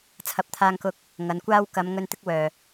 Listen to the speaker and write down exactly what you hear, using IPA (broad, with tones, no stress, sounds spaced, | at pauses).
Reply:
t͡sʰ ɐ˨˥ p̚ t̪ʰ aː˧ ŋ k ʊ˧ k̚ | ŋ ɐ˨˧ n kʷ aː˥ w k ɐ˨˧ m ŋ ɵ˧ n t̪ ɪ˥ k̚ w œː˨